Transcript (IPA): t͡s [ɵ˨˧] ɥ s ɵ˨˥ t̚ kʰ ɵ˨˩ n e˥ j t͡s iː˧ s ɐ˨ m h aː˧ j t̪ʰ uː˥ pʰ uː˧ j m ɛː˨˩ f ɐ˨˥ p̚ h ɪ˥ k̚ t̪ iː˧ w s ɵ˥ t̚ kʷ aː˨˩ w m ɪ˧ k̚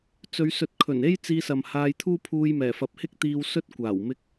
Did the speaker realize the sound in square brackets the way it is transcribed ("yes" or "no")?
yes